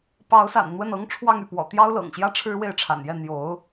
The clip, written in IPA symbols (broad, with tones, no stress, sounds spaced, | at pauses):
p ɑ˧˥ ʊ̯ s a̰˨˩ n n̪ w ə˥˩ n ɤ˥ ŋ ʈ͡ʂʰ w ɑ˥˧ ŋ y˥˩ p w ɔ̰˨˩ t̪ j ɑ˥ ʊ̯ l ɤ̰˨˩ ŋ ɕ j ä˥˩ ʈ͡ʂʰ ɻ̩˥ w e˥˩ ɪ̯ ʈ͡ʂʰ a̰˨˩ n j ɛ˥˩ n̪ j o˧˥ ʊ̯